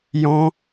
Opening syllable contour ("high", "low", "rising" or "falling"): high